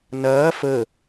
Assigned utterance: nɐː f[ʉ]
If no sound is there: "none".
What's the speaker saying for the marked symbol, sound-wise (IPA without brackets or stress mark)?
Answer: ə